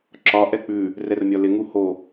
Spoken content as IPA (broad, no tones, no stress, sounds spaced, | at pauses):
ǁ ɒ ʔ ɛ k͡p ʉ | r ɛ r mʲ ɒ l ɪ ŋ u h o